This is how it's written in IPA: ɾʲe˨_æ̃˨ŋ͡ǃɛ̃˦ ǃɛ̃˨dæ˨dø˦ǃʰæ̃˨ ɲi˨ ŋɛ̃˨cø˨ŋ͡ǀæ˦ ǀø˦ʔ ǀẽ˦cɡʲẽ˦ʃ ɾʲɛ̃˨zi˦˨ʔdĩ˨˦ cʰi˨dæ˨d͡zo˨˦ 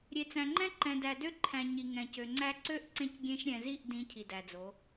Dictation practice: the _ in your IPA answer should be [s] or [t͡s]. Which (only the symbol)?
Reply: t͡s